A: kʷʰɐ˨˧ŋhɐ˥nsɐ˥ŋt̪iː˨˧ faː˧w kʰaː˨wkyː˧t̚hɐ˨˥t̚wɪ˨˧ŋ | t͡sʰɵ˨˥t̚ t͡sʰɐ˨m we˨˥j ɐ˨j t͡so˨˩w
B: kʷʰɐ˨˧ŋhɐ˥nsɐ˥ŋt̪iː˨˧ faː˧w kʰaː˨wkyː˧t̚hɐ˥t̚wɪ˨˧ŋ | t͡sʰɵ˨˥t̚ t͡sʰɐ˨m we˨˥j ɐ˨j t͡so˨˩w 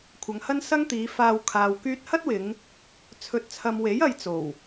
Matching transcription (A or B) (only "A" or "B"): B